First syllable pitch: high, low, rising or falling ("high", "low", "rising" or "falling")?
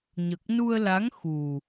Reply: low